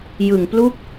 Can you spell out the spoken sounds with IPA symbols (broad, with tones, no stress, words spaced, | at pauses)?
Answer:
jɯ˨˩ŋplu˥˩k̚